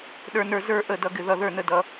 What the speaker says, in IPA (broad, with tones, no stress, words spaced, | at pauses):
ɗə˞˧nə˞˧ zə˞˧ ʔə˥˩dʌ˧ ɡɪ˧ðʌ˥˩ ðə˞˥˩nə˥˩ dʌ˧